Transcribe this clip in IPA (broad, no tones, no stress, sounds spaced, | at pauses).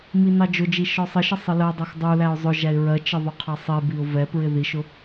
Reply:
m i n ɑ d͡ʒ ʊ d͡ʒ i ʃ ɔ sˤ ɪ ʃ ə sˤ ɪ l ɜ dˤ ɛ x dˤ u l æ ʊ̯ zˤ ʊ ʒ æ ɪ̯ ɹ ɜ t͡ʃ ɪ ðˤ ʊ qʰ ɑ sˤ i b i ʊ̯ v ɛ p ɹ ɪ ð i ʃ ʊ